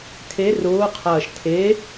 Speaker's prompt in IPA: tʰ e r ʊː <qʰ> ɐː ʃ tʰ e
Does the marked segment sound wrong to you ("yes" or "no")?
no